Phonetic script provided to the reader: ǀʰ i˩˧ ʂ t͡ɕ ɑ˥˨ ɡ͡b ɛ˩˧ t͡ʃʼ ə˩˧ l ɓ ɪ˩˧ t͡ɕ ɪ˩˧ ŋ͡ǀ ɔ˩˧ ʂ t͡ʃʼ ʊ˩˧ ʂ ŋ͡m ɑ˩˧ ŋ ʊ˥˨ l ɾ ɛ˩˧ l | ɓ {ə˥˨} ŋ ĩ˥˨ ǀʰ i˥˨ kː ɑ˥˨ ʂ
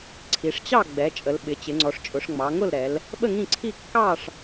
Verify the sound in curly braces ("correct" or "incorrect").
correct